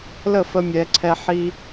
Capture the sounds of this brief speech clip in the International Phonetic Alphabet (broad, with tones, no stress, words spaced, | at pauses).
lə˥˩fə˧mʲɛ˩˧ǀʰɛ˧ ħi˧